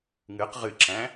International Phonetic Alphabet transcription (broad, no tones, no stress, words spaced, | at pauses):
ŋɨq ʁɨǁæ̃